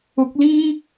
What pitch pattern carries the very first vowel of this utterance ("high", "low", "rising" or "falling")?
rising